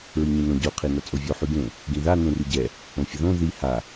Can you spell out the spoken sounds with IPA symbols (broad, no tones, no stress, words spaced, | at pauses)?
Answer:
ɹiɲĩnõ ɟo qʰinat͡sʼovʲo ħyɡẽ | ɡĩða nẽryɟɛ | õfʲəðõ ði ha